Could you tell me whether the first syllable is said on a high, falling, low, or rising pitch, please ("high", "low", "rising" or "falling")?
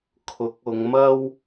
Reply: rising